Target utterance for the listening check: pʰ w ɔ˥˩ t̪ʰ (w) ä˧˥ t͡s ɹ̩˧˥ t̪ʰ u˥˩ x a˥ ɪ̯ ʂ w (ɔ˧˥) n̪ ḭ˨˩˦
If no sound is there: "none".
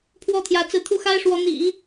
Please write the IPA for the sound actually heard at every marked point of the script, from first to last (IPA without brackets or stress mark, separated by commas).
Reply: j, ɔ˧˥